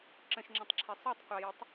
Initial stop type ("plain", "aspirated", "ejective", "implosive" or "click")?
click